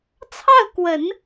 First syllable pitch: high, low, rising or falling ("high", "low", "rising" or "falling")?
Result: falling